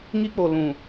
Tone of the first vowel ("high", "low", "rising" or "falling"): high